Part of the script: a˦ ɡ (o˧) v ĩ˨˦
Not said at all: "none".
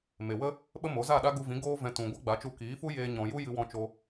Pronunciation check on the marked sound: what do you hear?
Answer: u˧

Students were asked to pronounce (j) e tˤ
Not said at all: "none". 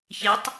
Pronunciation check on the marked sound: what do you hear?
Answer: ç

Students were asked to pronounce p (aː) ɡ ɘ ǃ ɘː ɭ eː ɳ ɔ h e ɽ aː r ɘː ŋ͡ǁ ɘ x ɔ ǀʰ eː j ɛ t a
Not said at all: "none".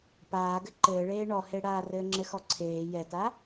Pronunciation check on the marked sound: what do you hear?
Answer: aː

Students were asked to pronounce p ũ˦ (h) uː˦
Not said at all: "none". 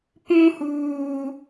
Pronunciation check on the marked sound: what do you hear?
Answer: h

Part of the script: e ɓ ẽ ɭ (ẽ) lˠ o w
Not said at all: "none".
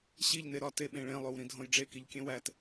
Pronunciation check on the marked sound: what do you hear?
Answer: ẽ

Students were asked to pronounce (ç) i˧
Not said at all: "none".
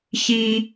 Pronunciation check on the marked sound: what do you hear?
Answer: ç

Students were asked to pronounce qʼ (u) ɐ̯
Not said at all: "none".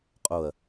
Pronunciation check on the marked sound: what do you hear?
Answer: o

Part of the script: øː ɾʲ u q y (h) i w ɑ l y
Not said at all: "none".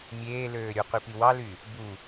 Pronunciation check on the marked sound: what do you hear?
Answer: p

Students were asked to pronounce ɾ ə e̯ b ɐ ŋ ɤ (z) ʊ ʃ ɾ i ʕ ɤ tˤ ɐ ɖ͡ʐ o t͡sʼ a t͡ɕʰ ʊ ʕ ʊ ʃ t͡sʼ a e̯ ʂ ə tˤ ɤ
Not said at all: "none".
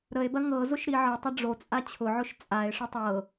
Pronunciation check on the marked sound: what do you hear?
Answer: z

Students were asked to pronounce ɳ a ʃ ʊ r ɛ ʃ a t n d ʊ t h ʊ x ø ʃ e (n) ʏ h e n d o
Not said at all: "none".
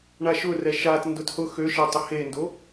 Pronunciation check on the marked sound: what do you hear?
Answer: tˤ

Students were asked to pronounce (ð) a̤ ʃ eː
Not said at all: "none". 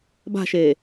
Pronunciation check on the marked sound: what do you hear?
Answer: b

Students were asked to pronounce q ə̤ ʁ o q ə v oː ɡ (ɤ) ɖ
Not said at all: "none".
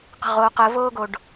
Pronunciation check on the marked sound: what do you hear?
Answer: o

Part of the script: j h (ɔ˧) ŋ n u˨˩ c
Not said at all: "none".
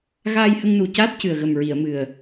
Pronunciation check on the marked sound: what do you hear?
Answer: ə˧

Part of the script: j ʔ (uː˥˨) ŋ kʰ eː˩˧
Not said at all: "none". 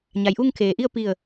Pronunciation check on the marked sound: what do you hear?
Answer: uː˥˨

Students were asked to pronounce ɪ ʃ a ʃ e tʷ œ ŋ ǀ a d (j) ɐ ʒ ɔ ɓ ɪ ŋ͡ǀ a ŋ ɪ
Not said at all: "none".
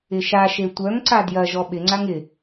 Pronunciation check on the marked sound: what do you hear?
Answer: j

